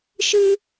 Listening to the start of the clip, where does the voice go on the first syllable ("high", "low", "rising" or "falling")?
high